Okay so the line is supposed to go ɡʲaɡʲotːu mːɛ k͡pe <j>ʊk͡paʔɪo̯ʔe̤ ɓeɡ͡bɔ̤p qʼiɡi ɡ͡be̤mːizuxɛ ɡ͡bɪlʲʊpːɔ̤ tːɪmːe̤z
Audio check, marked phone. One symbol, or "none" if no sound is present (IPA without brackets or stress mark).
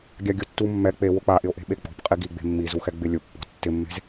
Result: w